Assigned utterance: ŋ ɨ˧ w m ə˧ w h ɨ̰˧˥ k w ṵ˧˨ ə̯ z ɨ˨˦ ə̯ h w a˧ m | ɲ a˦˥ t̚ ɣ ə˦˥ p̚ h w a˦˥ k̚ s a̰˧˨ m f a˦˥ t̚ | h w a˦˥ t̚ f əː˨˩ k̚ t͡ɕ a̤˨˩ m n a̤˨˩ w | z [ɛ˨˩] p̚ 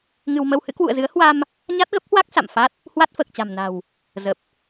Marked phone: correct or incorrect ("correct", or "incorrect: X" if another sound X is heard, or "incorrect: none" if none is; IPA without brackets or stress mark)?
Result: incorrect: ə˨˩